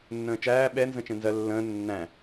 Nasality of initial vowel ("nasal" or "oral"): nasal